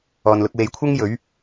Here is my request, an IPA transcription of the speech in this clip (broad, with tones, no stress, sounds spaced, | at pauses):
ɔː˨ n l ʊ˧ k̚ w e˨˧ j kʷʰ ɐ˥ ŋ j ɵ˨˥ ɥ